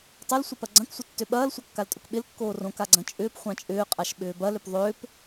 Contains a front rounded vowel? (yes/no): yes